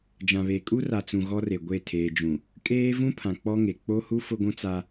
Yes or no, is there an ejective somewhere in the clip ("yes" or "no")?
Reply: yes